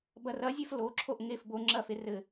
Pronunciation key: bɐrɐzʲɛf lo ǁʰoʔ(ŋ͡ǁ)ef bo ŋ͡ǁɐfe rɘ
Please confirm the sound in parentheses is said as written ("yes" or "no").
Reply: no